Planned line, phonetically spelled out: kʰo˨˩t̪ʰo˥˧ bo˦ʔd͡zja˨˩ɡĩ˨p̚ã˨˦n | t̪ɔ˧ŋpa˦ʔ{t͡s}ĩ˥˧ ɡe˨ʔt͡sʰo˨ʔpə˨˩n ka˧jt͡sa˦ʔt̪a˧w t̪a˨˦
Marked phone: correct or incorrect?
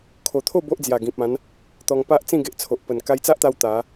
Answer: correct